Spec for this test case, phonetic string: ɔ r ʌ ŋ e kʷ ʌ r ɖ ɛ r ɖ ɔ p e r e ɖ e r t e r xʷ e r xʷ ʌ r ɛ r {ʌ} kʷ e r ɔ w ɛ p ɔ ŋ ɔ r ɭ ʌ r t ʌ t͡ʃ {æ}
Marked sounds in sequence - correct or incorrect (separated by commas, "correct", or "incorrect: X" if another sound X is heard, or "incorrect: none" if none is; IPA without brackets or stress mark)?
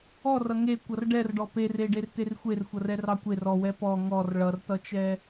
incorrect: ɑ, incorrect: ɛ